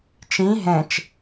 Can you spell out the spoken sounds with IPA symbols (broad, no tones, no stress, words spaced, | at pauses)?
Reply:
t͡ʃĩ ɦɛ̃t͡ʃ